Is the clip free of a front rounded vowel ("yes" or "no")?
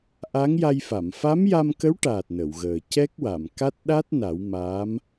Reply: yes